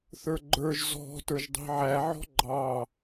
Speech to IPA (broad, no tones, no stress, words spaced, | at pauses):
θə˞ɡ͡ǃə˞ʒ zɔ̤ tə˞ʒdˤi̤ʕæ ʕɔ̤ɡ͡ǃɑ